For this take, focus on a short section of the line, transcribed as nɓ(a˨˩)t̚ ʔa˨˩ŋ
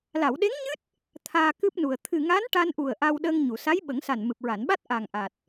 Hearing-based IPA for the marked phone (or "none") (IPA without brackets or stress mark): a˦˥